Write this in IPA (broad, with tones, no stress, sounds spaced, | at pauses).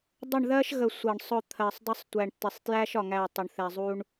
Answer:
dˤ ə˦˨ ɳ ð ɜ˦ ʃ ɣ ə˨ sʷ ʌ˨ ɳ sˤ ʊ˦˨ t̪ʰ ɜ˨ sˤ dˤ ə˦ sˤ tʷ æ˨ ɳ tː ɪ˨ sˤ t j æ˦ ʃ ɒ˨ ŋ æ˦˨ tˤ ʊ˨ ɳ θ ɛ˨ zˤ u˦ ɳ